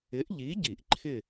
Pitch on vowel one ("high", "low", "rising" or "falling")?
rising